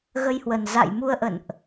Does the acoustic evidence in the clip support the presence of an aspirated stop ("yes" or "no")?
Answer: no